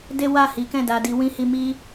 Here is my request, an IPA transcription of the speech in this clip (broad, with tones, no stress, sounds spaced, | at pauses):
d e˦ w a˦˨ h i˨˦ k ɛ̃˦˨ d a˧ d i˧ w ĩ˦ h i˧ m i˦